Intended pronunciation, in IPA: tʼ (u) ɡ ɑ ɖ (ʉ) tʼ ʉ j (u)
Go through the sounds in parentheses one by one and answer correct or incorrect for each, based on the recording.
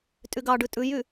incorrect: y, correct, incorrect: y

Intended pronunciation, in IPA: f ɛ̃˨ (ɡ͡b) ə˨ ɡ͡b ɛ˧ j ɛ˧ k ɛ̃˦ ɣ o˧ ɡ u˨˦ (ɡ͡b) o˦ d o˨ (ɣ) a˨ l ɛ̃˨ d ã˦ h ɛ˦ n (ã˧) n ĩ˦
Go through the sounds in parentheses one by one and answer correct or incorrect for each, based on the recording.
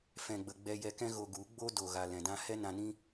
correct, correct, correct, correct

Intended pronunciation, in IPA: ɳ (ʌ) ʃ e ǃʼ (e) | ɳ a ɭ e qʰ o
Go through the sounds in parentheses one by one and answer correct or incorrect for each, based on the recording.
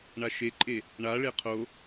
incorrect: a, correct

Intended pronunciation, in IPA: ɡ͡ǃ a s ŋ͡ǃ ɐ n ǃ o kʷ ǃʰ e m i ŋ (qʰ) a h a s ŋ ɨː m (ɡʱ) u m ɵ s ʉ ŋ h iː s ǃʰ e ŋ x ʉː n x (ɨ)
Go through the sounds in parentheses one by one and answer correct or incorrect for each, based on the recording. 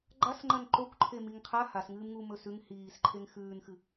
correct, incorrect: ŋ, correct

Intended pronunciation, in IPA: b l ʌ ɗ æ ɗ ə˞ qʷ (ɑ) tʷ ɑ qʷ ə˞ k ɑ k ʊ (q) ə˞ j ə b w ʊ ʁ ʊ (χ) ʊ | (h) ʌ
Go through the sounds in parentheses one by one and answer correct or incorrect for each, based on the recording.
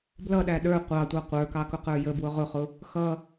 correct, correct, correct, incorrect: x

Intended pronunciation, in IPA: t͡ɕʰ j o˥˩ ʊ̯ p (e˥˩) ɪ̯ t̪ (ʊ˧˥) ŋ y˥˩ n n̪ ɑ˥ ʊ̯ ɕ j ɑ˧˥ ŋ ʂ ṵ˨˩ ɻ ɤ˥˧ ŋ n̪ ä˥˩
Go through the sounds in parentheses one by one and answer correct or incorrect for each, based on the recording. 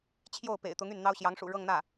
incorrect: ḛ˨˩, correct

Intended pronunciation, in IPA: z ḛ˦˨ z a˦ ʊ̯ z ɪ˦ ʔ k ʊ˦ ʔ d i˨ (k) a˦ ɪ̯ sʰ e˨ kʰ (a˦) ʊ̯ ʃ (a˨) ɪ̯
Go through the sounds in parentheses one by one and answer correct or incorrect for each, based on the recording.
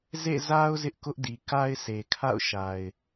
correct, incorrect: a̰˦˨, correct

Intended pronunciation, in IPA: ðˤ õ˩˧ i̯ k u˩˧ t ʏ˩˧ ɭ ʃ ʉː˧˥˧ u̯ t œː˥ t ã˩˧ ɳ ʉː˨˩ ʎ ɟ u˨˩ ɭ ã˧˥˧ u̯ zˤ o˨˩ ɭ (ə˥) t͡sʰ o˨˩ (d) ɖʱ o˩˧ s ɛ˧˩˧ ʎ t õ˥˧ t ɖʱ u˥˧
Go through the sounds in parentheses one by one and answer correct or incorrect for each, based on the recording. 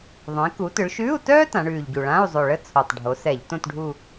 correct, incorrect: tˤ

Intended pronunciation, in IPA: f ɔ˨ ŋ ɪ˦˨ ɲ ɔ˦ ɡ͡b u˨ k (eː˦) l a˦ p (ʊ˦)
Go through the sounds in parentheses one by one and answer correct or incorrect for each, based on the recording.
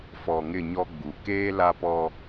correct, incorrect: ɔ˦

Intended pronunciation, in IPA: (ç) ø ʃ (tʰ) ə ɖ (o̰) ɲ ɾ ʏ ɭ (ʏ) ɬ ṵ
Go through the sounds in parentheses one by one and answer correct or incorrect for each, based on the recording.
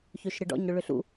correct, incorrect: ɾ, incorrect: ɔ̰, correct

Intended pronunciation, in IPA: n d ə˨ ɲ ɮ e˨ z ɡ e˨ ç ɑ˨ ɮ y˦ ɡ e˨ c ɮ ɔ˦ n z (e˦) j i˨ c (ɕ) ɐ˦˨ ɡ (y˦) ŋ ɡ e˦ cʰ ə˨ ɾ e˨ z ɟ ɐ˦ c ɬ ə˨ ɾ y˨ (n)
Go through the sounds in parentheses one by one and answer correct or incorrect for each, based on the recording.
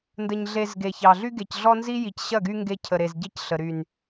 incorrect: i˦, correct, correct, correct

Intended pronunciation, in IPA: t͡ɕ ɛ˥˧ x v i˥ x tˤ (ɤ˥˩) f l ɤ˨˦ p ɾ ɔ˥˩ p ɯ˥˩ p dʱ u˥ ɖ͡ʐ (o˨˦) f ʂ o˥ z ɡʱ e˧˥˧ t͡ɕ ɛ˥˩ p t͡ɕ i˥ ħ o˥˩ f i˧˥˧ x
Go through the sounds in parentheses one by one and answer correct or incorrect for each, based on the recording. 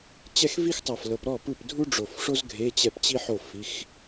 incorrect: ɤ˧˩, incorrect: o˧˩

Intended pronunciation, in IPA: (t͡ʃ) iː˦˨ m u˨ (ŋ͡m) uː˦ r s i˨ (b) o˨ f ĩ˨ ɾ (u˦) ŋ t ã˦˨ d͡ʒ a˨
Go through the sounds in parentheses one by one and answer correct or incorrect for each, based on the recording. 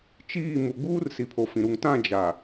correct, incorrect: ɡ͡b, incorrect: pʰ, incorrect: u˨

